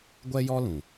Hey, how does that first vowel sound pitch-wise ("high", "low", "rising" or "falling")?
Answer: high